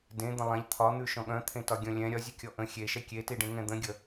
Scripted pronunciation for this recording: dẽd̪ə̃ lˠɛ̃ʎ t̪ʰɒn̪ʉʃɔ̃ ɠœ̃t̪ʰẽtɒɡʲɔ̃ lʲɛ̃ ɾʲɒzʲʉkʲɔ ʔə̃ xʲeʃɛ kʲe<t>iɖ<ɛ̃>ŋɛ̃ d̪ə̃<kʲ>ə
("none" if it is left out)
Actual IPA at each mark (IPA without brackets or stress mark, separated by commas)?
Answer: t, ẽ, ɡʲ